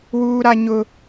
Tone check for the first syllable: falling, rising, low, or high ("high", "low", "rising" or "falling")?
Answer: high